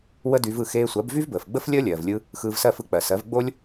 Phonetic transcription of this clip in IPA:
w ə˥ d y˧ v ɯ˥˩ x eː˧ sʷ ɜ˩˥ b v y˥ v b əː˩ f ɡ͡b ə˥ f lʲ əː˥ lʲ ɜː˩ v lʲ ɯ˧ | x ɯː˧ v s ɜ˥˩ f ɯ˧ k͡p ɜ˩ s ɜ˩˥ v ɡ͡b o˥ lʲ

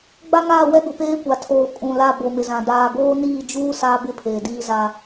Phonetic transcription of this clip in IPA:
ɡ͡b a˦ ŋ aː˦˨ w ɛ˦ ɡ ʊ˨ p eː˦ kʷ a˨ tʰ oː˨ kʼ ũ˨ l a˦˨ b o˨ m ɪ˨ z ã˨ d aː˨ ɡ oː˦ n iː˦˨ d͡ʒ uː˦ s aː˦ b ɪ˦ pʰ eː˨ d iː˦ z a˦

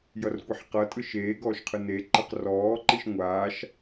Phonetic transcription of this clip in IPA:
j ʌ r kʷ e ħ q ʌ tʼ ɯ ʃ eː ɡ ɔː ʃ qʰ ɯ n e ǃ ɯ q r ɔː ǃ i ʃ ŋʷ aː ʃ

